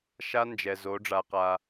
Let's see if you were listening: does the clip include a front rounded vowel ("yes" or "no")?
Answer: no